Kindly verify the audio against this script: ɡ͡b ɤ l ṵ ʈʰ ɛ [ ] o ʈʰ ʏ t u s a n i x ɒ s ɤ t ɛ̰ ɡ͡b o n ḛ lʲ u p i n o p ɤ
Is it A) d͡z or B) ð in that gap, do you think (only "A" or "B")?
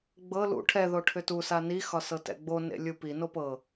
B